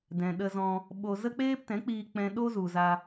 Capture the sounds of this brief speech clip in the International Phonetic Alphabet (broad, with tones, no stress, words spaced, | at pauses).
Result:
dɛ̃˨ɗə˧zɔ̃˧ | ɓo˧ zə˦k͡peː˦ptɛ̃˨˦k͡piː˧ k͡pɛ̃˦ ɗo˦zu˨ za˧